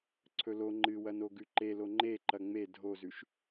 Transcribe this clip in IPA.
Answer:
ǀʰ ɵ l o ŋ͡ǃ ɨ w ɐ n o ɡ ʉ ǃ e l o ŋ͡ǃ e ǃ ɐ ŋ͡m e dʱ o z ʉ ʃ

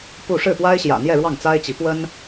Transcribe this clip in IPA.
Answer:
p u˥˧ ʂ ɻ̩˥˩ p w a˥ ɪ̯ ɕ j ä̰˨˩ n̪ j ɛ˥˧ ɻ w ɑ˥˩ ŋ t͡s a˥ ɪ̯ t͡ɕ i˧˥ p w ə˥ n

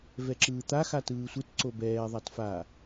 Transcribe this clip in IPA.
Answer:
v ɛ ǁ ɯː t̪ a x a t ɯː sʷ ɯ t ǀ o b ɛː ðˤ a t f a

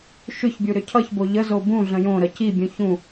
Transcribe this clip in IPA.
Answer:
ʃ ʏ ç bʲ u ɾ ʏ cʰ ʌ ç b o ʎ ə z o b ũ ɮ ə̃ j õ ɾ ə c i bʲ ũ ç ũ

